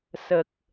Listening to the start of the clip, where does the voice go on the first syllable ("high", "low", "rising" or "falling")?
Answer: low